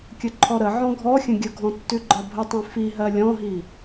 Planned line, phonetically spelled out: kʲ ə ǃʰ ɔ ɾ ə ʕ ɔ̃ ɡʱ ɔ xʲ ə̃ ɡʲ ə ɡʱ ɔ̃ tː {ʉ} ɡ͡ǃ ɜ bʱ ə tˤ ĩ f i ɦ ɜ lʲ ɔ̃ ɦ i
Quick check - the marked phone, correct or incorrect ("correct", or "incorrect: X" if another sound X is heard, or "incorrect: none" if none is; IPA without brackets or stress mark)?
correct